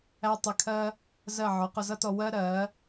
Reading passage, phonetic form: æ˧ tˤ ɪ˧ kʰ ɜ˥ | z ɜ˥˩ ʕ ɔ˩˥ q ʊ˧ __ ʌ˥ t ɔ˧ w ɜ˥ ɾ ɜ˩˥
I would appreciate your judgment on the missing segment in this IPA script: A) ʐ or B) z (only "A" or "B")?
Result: B